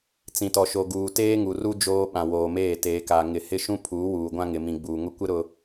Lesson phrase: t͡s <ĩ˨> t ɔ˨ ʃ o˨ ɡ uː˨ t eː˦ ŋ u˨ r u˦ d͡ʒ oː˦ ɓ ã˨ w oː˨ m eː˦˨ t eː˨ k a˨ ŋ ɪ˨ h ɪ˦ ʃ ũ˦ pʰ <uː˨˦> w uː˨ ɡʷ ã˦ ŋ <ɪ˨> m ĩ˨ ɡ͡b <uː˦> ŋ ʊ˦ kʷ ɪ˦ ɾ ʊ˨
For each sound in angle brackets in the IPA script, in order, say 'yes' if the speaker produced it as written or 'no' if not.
yes, yes, yes, no

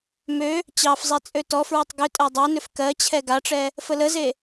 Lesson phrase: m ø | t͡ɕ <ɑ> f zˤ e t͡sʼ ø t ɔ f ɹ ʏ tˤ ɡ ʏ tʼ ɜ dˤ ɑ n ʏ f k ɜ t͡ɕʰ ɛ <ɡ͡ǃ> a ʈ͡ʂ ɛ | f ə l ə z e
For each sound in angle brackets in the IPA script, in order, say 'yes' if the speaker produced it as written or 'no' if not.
yes, no

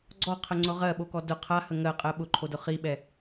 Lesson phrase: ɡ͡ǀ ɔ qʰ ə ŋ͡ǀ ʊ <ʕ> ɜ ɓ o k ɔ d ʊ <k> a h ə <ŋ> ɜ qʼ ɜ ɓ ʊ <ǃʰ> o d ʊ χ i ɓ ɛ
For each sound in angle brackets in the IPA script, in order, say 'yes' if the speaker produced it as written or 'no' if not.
no, no, yes, yes

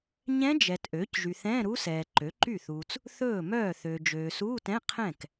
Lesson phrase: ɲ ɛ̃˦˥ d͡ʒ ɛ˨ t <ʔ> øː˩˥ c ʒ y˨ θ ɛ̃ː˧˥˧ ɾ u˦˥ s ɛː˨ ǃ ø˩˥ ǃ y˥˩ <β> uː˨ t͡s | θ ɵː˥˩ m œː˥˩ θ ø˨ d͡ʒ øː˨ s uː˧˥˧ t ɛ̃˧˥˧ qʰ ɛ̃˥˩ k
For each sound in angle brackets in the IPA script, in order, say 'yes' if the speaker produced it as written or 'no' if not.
yes, no

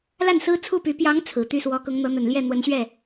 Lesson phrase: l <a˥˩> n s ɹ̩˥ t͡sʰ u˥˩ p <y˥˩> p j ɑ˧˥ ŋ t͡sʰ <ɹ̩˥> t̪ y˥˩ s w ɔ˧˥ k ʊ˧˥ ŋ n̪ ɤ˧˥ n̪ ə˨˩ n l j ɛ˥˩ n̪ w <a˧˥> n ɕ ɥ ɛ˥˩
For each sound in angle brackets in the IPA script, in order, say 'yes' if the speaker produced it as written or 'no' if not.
yes, no, no, no

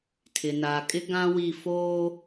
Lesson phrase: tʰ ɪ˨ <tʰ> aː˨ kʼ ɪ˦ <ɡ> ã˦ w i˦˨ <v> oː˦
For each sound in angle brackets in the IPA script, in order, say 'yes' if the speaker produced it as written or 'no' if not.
no, yes, no

